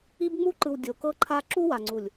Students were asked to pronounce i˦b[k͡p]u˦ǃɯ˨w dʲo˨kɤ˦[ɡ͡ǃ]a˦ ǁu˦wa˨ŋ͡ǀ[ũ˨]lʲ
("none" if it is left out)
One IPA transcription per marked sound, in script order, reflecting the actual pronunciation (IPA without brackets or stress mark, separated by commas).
ŋ͡m, ǃʰ, u˨